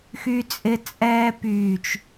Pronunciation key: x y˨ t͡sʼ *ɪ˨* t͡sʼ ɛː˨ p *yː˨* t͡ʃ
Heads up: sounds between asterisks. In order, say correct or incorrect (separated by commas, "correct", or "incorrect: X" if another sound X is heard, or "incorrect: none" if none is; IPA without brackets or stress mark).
correct, correct